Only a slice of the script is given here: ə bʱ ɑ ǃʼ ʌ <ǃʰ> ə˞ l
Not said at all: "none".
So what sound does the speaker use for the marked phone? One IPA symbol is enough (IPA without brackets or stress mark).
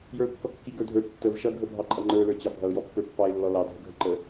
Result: ŋ͡ǃ